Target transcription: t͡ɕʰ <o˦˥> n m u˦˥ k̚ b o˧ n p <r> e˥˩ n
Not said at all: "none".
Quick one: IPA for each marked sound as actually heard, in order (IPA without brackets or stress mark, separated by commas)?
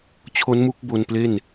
o˦˥, l